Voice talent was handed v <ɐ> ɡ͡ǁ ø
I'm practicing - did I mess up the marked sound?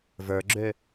yes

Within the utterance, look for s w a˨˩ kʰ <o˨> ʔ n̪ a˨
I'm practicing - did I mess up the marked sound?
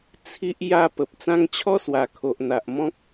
no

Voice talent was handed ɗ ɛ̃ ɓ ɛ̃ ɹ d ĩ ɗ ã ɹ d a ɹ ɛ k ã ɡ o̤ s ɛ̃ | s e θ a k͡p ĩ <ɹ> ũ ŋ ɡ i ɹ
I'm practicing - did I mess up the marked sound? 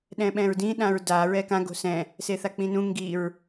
yes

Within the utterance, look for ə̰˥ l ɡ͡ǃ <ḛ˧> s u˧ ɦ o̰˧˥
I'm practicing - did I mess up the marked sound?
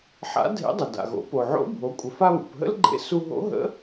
no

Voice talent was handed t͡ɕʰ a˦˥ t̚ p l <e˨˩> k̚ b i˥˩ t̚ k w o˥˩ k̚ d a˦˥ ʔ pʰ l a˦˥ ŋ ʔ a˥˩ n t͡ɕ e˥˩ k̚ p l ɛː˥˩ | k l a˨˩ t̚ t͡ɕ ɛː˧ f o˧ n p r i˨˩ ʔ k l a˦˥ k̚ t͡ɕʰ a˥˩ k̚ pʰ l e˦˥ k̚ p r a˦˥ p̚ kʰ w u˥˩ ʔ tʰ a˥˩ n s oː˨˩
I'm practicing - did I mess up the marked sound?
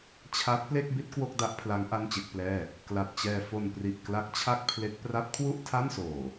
yes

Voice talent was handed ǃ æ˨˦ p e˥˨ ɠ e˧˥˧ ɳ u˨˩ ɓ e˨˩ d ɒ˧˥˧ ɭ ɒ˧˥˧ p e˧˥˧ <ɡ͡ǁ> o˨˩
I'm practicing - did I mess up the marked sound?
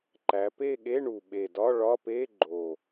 yes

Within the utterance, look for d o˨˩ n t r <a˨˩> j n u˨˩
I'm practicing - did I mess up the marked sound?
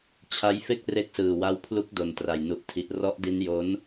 no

